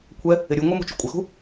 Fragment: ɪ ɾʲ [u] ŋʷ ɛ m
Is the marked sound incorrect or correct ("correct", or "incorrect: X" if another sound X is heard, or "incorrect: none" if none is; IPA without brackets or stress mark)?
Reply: correct